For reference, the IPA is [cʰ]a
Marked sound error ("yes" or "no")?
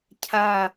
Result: no